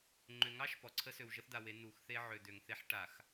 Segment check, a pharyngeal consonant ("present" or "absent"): present